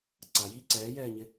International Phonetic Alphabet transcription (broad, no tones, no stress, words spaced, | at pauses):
ǀajiː ǀɛːjɛːɲɪ